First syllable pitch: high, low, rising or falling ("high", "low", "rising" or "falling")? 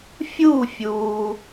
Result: falling